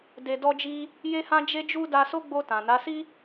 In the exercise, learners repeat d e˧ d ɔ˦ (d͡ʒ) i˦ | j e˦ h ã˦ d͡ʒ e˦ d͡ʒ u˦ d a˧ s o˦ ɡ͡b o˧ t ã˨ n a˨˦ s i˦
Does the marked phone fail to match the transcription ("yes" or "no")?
no